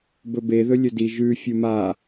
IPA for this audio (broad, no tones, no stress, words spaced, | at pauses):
bɵbe ðɵlʲɵdi ʒʉ fʲuma